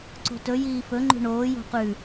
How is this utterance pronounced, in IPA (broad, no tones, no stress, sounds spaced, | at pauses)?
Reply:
ǀ o̤ t ɵ j iː f ɵ ŋ͡ǃ ṳ ɳ oː j o̤ q ʉ